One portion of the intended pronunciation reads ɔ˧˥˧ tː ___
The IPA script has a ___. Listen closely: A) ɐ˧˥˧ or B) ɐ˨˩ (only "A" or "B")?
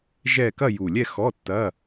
A